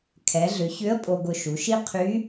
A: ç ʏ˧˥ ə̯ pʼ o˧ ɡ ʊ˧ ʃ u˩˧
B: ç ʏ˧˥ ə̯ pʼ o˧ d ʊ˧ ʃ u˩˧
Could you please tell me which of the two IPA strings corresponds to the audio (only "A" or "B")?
A